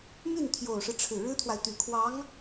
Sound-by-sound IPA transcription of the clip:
my˥˩nt̪ʰjo˨˩ʊ̯ʂɻ̩˦ ʈ͡ʂʰɻ̩˨˩ɻɻ̩˥t̪ʰwa˨ɪ̯ t̪y˨˩kʰwɑ˧˥ŋ

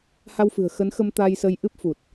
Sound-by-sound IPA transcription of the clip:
ha˧w fɨ̤˨˩ə̯xə˨˦nxə˧m t̪a˧jsə˧jʔɨ˦˥p̚fu˨˩t̚

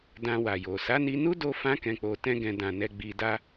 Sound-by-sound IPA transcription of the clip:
dã˧wa˨jo˨ sa˨˦ni˧nu˦ do˦fã˦ kɛ̃˧k͡po˧tɛ̃˦ɡɛ̃˧ dã˨ nɛ˧ ɡ͡bi˧da˦

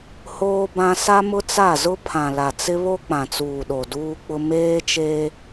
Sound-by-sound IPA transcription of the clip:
hoː˦bã˦ sa˦mʊ˦t͡sa˦˨zʊ˦ pʰã˨la˨t͡sɪ˦βo˦ k͡pã˨t͡suː˨ɗo˨ duː˦k͡pʊ˦ meː˦t͡ʃeː˦

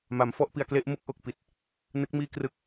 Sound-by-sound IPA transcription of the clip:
ma˩˦mfɔ˥˩ʔpi˧a̯kle˦˥ʔ mɯ˦˥k̚ʔo˨˩k̚pi˨˩t̚ | nɯ˦˥k̚miː˥˩ krɯ˥˩k̚

